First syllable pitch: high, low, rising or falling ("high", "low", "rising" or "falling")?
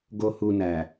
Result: low